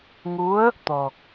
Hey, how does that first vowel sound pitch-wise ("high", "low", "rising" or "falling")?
rising